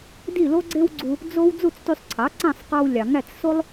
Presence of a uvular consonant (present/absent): present